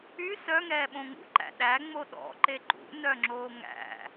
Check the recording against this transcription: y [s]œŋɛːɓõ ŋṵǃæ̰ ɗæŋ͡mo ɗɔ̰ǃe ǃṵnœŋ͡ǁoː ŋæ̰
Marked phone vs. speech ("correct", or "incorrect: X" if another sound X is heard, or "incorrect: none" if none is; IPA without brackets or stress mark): correct